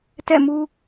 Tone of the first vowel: falling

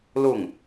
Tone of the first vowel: falling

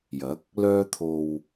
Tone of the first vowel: rising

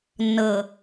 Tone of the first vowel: low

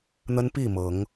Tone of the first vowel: high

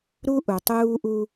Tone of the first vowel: high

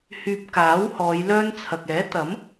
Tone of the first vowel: low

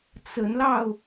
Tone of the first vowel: rising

